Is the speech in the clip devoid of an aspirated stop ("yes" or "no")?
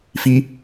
yes